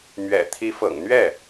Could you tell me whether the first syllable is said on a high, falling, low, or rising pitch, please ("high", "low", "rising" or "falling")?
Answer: low